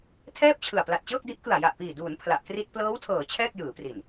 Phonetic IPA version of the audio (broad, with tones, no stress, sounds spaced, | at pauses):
tʰ ɛː˥˩ p̚ t͡ɕʰ ɯ˨˩ a̯ p l a˨˩ t̚ t͡ɕ ɤː˥˩ k̚ d i˦˥ ʔ k ɯ˨˩ a̯ j a˨˩ ʔ p iː˨˩ d uː˩˦ n pʰ l a˨˩ ʔ k r i˥˩ t̚ p l ɤː˦˥ w tʰ ɤː˩˦ t͡ɕʰ ɛː˥˩ k̚ j ɯː˩˦ p r i˨˩ n